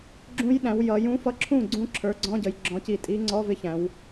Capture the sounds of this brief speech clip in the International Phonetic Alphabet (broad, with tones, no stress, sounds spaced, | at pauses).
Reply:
ɡ͡ǁ ũ˧˥ j ɗ æ̃˩˧ w j ʌ˩˧ j ũ˧˥ f ʌ˧˥ ǁʰ ũ˥˩ ɡ͡ǀ ũ˧˥ ǁʰ ə˞˩˧ ɡ͡ǀ ɔ̃˧˥˧ ɟ ə˩˧ j ɡ͡ǁ ɔ̃˩˧ c i˨˩ tʼ i˧˥ ŋ͡ǀ ɔ˧˥˧ v ɪ˧˥ ç æ̃˩˧ w